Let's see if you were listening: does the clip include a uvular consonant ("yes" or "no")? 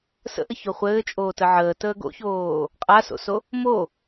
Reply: yes